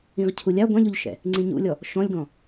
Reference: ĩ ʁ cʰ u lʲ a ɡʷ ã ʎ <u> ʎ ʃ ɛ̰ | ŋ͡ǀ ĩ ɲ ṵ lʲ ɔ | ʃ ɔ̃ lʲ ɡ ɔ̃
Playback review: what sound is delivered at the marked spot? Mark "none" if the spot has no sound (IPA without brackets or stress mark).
u